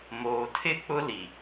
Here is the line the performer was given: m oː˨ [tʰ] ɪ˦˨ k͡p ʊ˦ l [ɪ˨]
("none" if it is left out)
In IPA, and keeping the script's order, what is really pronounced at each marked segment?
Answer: tʰ, i˨

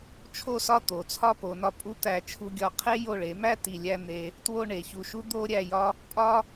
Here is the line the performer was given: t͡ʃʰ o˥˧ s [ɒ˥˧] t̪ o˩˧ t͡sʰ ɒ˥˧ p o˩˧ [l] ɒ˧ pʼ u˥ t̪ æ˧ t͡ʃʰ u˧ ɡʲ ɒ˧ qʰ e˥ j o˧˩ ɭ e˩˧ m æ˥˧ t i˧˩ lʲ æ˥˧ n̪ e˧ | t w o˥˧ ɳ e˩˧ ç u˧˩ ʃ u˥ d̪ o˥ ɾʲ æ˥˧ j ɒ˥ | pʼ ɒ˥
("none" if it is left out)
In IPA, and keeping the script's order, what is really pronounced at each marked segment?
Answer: ɒ˥˧, n

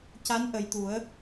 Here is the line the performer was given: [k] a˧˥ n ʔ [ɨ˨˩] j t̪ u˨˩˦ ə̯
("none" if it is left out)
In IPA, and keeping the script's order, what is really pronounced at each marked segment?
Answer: c, ə˨˩

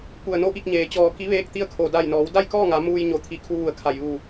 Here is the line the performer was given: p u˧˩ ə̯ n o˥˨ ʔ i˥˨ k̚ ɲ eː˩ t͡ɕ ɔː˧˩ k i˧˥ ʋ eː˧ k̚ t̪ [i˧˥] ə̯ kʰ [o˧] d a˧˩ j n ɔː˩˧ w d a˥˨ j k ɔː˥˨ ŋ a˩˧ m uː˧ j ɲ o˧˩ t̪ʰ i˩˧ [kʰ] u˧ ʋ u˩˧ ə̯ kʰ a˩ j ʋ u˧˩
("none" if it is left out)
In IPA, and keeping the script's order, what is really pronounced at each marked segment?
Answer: i˧˥, o˩, kʰ

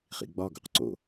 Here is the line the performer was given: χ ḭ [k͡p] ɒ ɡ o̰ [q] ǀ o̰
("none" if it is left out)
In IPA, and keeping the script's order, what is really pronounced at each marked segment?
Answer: ɡ͡b, q

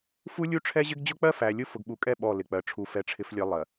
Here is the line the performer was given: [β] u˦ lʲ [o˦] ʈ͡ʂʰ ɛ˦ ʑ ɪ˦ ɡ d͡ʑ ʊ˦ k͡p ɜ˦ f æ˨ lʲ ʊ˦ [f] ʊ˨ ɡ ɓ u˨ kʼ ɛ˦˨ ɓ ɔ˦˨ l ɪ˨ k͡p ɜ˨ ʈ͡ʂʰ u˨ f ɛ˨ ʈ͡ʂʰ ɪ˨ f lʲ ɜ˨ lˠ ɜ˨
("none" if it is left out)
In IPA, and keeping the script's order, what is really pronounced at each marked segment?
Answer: f, u˦, f

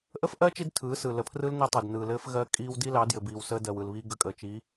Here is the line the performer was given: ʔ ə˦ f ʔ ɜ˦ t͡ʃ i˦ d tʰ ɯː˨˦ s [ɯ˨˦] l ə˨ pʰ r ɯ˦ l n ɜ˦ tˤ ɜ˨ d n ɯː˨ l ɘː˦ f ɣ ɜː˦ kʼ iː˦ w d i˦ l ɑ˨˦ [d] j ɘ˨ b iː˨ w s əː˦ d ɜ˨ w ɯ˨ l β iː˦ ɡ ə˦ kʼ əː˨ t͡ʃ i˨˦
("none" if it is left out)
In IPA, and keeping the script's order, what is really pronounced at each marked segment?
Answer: ɯ˨, d

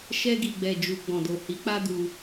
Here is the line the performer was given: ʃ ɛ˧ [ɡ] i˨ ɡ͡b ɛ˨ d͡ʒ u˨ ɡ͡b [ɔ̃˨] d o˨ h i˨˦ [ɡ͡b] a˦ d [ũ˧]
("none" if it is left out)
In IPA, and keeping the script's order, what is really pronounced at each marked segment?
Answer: ɡ, ɔ̃˨, k͡p, u˧

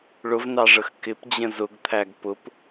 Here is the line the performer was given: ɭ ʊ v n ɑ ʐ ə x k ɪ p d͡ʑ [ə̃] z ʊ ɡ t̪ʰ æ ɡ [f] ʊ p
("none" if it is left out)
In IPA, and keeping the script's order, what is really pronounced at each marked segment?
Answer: ə̃, p

